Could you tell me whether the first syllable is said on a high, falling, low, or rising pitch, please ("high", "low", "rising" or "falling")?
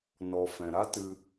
low